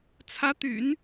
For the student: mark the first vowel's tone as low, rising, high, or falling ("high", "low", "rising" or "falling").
rising